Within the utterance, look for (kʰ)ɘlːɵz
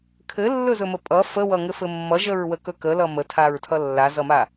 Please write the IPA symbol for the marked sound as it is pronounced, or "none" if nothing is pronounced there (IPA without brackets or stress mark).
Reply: kʰ